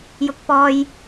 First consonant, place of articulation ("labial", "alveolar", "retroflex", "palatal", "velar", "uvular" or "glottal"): palatal